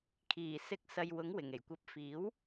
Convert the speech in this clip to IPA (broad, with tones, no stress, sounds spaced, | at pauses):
kʰ iː˨˩ s ɪ˨˥ k̚ s ɐ˨ j w ʊ˨˥ ŋ w ɪ˨˩ ŋ e˨˩ j kʷ ɐ˨˥ p̚ f iː˨˥ w